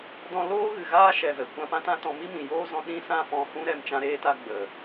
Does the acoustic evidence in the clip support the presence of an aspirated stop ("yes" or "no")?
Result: no